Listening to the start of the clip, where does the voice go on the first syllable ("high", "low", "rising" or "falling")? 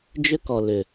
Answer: high